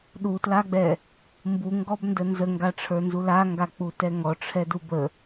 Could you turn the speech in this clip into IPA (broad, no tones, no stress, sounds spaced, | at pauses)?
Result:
ɗ u t l a ɡ͡b ɛ | m b u ŋ ɡ ɔ b n d ə n z ə ŋ ɡ a ʈ͡ʂʰ ə˞ n z u l a ŋ ɡ a k͡p u t ɛ ŋ ɔ ʈ͡ʂʰ ɛ d u b ə